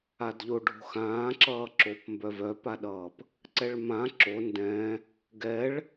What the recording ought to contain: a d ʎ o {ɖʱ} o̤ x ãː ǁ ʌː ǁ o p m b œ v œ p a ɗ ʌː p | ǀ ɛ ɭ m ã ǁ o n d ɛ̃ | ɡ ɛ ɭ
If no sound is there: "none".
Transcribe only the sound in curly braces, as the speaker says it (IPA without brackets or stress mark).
ɖʱ